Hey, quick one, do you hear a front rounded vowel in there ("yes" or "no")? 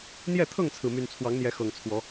yes